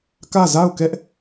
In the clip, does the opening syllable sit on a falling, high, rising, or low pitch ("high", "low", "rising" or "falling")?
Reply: falling